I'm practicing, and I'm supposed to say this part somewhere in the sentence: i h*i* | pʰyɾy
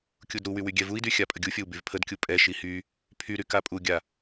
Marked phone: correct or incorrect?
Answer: incorrect